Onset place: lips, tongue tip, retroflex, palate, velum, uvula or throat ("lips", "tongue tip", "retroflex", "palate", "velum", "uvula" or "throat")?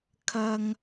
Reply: velum